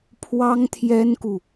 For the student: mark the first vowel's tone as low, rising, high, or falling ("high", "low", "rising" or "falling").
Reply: high